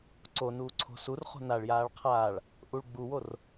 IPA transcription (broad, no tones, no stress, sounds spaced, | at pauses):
ǀ o n uː ǀʰ o̤ s u r χ o̤ n a ɭ j aː ɭ qʰ aː ɭ | ʔ u ɭ ɡ͡b u w o r